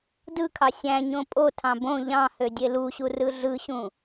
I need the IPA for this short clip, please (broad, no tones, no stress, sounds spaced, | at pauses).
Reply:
d ɯ kʰ ɑ sʲ æ̃ ɲ õ pʼ o tʰ ɑ̃ b õ ʎ ɑ̃ h ø dʲ e l u ɕ u r ɯ ɮ ɯ ɕ ũ